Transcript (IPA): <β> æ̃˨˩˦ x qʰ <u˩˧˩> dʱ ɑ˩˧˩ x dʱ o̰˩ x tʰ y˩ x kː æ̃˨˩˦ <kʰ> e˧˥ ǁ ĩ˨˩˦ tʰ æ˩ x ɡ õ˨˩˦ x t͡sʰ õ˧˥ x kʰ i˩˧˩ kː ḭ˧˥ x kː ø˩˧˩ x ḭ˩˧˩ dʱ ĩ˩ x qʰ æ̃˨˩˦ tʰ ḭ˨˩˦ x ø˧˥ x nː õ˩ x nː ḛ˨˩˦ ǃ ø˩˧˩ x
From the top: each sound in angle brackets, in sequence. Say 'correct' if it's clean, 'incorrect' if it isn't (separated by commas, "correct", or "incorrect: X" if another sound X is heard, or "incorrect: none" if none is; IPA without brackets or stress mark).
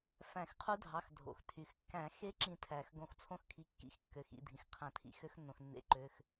incorrect: f, incorrect: u˧˥, incorrect: x